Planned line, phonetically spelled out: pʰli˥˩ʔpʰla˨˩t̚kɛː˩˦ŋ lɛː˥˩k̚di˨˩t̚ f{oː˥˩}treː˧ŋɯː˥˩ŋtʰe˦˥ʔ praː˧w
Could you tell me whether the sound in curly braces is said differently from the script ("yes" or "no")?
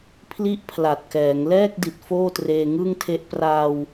no